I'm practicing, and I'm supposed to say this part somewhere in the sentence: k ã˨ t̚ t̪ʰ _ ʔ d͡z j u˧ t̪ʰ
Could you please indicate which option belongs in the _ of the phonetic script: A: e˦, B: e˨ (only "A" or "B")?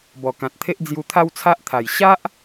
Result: A